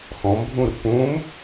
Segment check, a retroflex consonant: absent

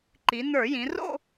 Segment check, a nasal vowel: present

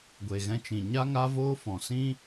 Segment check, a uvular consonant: absent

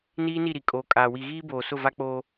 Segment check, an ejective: present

